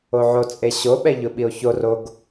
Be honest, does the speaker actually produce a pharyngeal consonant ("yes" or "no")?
yes